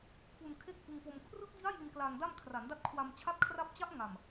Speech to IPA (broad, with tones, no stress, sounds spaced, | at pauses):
kʰ u˧ n kʰ e˥˩ k̚ ʔ ɯ˧ ŋ p o˧ m kʰ r ɯ˦˥ k̚ d i˦˥ a̯ j i˧ n k l aː˧ ŋ d a˥˩ m kʰ r a˩˦ n d a˦˥ t̚ kʰ w a˧ m t͡ɕʰ a˥˩ t̚ kʰ r a˥˩ p̚ t͡ɕ a˦˥ ʔ ŋ a˨˩ m